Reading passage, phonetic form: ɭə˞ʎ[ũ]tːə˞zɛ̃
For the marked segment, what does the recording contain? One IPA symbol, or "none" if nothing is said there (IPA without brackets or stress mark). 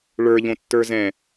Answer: õ